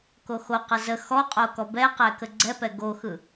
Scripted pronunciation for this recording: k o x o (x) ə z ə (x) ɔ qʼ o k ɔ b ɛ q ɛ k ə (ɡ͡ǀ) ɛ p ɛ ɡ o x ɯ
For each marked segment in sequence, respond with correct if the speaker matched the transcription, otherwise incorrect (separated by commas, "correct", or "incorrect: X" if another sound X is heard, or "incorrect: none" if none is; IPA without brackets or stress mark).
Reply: incorrect: q, correct, correct